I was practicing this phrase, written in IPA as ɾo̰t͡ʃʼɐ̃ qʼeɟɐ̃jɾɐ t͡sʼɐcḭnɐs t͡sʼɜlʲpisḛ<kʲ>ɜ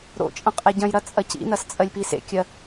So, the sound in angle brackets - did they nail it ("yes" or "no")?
yes